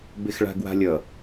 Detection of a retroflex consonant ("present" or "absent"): present